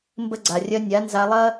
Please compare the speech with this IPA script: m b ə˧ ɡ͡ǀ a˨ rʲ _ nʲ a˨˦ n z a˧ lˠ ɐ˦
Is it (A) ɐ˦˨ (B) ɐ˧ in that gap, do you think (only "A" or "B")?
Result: B